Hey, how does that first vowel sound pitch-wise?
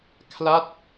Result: falling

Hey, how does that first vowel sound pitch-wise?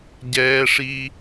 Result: high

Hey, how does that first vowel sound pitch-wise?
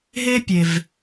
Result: high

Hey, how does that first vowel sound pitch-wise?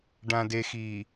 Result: low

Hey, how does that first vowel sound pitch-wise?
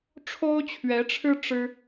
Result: high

